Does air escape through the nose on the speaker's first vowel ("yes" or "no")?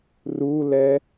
no